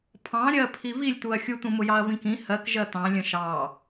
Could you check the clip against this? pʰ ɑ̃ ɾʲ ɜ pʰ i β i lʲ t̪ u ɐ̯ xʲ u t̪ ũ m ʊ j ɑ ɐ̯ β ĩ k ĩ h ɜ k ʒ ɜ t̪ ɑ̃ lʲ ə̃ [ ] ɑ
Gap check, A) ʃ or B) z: A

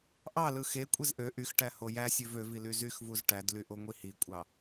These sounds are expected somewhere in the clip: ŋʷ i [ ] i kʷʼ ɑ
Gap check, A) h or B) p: A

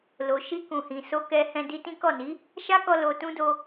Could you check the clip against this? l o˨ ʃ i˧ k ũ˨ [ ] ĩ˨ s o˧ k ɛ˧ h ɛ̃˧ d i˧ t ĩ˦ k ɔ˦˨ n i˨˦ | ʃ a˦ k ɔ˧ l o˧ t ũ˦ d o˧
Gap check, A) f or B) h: B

